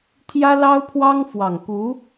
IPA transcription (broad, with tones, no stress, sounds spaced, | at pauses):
t̪ʰ j ä˥ l ɑ˥ ʊ̯ pʰ w ɑ˥ ŋ f w ɑ˨˩ ŋ k u˧˥